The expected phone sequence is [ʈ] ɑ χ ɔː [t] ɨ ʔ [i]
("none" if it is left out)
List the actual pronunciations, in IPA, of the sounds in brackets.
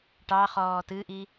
ʈ, t, i

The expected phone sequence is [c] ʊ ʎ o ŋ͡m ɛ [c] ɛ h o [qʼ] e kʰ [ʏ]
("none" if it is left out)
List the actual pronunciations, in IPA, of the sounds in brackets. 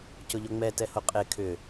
c, t, qʼ, ʏ

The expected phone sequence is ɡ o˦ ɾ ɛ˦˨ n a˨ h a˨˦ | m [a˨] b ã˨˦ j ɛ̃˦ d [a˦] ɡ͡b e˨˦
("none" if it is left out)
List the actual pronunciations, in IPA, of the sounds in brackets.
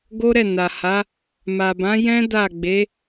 a˨, a˦˨

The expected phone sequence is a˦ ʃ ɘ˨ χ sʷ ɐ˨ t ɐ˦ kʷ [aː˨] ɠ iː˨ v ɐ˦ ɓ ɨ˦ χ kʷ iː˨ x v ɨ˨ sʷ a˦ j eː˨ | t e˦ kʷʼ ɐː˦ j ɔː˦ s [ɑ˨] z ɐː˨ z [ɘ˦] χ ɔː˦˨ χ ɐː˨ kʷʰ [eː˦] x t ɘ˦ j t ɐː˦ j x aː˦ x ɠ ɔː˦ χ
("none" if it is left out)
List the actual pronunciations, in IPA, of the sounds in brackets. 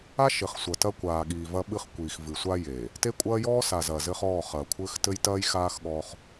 aː˨, a˨, ɘ˦, ɘː˦

